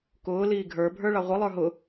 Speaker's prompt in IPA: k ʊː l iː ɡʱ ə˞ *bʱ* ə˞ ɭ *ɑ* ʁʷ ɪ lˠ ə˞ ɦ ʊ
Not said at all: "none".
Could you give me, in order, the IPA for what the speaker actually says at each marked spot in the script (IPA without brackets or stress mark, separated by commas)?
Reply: bʱ, ɑ